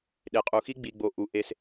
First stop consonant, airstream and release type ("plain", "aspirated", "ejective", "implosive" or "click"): implosive